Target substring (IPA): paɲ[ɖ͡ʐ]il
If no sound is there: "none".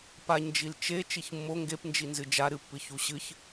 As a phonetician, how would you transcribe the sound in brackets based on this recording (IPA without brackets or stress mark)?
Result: d͡ʒ